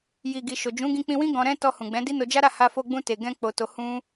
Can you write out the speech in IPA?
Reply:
ji˨ɡi˨ ʃo˨d͡ʒũ˨˦ ɡĩ˧k͡pĩ˧wĩ˦ ɡɔ̃˧ɾɛ̃˦ tɔ˧hũ˨ɡ͡bɛ̃˨˦ di˦no˧d͡ʒa˦ ɾa˦˨ha˧fo˧ɡ͡bũ˧ te˨ɡɛ̃˧ k͡po˧to˧hũ˦

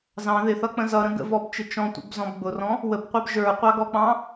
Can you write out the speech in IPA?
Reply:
zɑ̃ ðɪθʌk͡pə̃ zʌɾə̃ ɡə̰vɔbt͡ʃɪ t͡ʃɔ̃tʷə̰bzɔ̃b ɡ͡bʊrɔ̃ | wəbqʷɑb ʒə˞qʷɑɡɔk͡pɑ̃

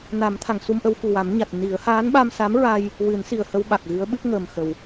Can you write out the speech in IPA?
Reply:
na˨˩˦mt̪ʰa˨˩˨ŋsu˧mʔə˧w fu˨˩wa˨˩˦mɲa˨˩t̚ ni˨˩˦ə̯ haː˧˥nɓa˧msa˧˥mɹa˧j | wɨ˨˩˦nsi˨˩ə̯hə˧w ɓa˨˩k̚ɣɨ˧˥ə̯ ɓɨ˦˥p̚ŋəː˨˩mxə˨˩w

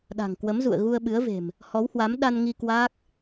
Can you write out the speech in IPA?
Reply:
ɗa̤˨˩ŋkwə˨˦mzṵ˧˨ə̯ ɣu˧ə̯ɓɨ˨˦ə̯ve̤˨˩m | hɔ˨˦whwa˨˦m ɗa˧nŋi˧ kwaː˦˥k̚

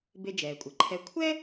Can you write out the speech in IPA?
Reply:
be˧d͡ʒɛː˩kʷʼɘ˩ǃʰɛ˧ kʷʰɛ˥

